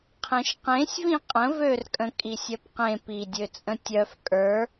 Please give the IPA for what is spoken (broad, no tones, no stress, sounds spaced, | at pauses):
qʰ ẽ ʃ q ẽ sʲ v ĩ qʼ ə̃ v ø r kʼ ə̃ kʼ i sʲ œ p q ẽ p i dʲ ø t͡sʼ ə̃ tʲ œ f kʼ ə˞